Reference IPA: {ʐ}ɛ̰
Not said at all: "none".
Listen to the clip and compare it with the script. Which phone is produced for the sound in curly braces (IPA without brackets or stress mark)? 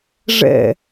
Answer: ʐ